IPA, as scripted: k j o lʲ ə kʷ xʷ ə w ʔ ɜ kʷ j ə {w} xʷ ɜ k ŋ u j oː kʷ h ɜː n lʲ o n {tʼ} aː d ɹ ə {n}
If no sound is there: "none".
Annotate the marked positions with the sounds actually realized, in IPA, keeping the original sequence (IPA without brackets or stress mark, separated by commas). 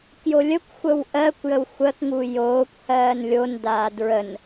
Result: w, d, n